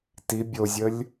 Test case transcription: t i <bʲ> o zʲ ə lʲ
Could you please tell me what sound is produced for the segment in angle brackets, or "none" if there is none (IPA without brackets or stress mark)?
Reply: bʲ